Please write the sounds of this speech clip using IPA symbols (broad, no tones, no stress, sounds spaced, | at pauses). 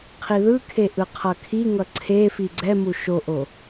qʰ i ð ɯ kʰ e ʔ ɯ qʰ ʌ kʰ i ŋ ʌ ǀʰ e f i ɡ͡ǀ ɛ m u ʃ o ʔ o